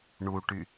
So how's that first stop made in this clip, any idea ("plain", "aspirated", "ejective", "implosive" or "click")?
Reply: plain